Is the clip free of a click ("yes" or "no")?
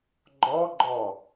no